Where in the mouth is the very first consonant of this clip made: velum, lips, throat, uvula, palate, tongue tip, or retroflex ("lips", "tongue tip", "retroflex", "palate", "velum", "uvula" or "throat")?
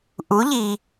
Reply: throat